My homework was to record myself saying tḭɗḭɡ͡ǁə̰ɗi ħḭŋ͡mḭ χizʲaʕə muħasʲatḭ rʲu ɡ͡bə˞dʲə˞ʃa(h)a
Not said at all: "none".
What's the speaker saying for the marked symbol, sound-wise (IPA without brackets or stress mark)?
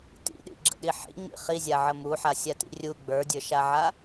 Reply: ʕ